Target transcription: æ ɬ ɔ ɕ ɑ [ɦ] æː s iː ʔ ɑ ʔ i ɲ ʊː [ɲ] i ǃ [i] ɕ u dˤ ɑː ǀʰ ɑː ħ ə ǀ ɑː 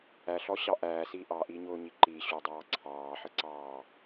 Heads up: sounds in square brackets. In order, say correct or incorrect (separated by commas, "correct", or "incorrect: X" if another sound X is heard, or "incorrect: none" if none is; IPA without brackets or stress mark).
incorrect: ʔ, correct, correct